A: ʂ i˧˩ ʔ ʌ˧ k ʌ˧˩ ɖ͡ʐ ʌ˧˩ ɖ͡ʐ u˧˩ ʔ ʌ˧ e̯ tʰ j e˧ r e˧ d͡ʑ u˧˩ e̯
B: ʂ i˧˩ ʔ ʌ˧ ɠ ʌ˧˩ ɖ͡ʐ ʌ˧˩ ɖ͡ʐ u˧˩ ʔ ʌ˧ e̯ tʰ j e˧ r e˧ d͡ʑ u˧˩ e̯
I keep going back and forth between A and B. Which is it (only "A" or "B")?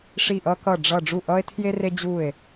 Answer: A